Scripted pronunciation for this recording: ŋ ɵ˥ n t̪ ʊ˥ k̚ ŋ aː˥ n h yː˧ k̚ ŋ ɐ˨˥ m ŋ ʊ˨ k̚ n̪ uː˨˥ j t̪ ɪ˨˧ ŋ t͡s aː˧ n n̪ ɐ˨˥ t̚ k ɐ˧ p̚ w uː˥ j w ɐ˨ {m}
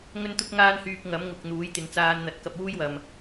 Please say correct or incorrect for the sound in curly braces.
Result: correct